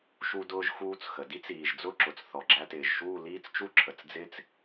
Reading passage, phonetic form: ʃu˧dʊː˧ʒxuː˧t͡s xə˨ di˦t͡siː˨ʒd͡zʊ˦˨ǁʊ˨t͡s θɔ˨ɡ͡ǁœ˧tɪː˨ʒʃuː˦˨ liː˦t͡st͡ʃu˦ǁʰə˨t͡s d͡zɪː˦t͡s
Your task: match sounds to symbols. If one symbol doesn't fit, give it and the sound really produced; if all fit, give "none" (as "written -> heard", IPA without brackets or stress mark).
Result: œ˧ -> æ˧